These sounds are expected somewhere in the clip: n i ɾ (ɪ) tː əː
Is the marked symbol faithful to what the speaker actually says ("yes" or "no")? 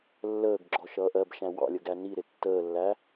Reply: yes